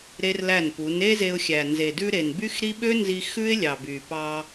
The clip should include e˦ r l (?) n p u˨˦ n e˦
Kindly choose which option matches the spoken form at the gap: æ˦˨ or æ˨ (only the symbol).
æ˦˨